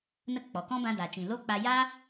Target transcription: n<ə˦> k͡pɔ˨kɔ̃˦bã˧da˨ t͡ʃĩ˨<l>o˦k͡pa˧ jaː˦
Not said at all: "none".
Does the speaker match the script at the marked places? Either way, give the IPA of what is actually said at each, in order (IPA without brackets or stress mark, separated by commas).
ə˦, l